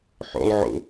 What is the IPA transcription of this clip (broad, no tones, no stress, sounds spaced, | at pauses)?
ħ o̰ lˠ ʕ o̰